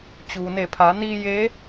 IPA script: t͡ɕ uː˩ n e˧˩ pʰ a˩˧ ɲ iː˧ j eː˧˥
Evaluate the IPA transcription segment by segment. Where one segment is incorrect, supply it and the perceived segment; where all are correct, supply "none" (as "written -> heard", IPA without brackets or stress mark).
ɲ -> n